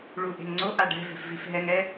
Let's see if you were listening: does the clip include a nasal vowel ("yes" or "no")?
no